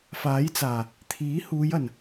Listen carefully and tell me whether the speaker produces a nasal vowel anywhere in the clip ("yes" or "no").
no